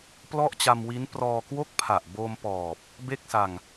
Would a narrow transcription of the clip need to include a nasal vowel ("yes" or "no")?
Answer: no